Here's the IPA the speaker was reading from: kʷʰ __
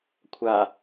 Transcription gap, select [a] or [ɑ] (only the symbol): a